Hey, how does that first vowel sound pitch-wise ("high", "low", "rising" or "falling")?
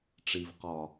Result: low